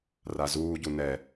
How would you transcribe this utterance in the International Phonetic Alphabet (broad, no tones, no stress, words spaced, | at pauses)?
razuːɟu nɛ